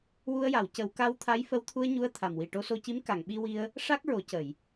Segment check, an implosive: present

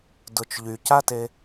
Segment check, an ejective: absent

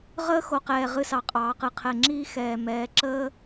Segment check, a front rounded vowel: absent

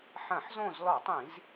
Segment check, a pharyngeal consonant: present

